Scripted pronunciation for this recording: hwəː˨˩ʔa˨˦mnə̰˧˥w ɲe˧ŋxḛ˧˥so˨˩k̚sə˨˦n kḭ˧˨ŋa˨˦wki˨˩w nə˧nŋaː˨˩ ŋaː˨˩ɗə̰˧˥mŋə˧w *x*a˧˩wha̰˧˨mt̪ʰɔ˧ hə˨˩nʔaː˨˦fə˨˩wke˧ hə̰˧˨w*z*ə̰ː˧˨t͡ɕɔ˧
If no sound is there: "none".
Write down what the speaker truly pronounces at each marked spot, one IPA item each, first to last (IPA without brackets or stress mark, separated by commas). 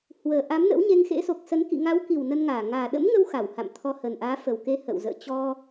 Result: x, z